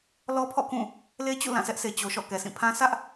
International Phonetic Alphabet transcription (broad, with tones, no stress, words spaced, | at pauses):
lɔ˦pʰɔ̰˦˨kũ˦˨ | le˦t͡ɕṵ˦˨ lã˦˨sɛ˦ʔse˨ t͡ɕo˨ʃɔ̰˦˨ kɛ˨sʰĩ˦˨ pʰã˦ sʰä˦ʔ